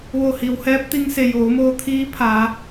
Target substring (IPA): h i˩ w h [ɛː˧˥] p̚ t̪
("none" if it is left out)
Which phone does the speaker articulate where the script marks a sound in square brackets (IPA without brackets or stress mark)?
ɛː˧˥